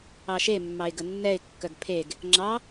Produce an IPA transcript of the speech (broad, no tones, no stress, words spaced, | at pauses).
ɑʃe mːɑɪ̯ɡənːɛɪ̯ kːœɡpʰeɡ | ŋ͡ǁɑ